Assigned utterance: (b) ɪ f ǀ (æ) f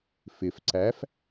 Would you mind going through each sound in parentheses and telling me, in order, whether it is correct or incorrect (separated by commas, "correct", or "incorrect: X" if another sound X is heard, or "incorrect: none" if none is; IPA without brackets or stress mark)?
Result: incorrect: f, correct